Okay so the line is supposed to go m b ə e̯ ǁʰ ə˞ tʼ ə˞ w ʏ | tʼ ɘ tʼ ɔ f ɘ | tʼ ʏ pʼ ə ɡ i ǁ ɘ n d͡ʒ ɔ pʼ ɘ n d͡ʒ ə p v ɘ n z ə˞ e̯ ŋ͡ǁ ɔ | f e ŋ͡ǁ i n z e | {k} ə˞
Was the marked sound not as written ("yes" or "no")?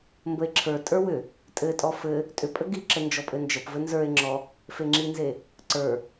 yes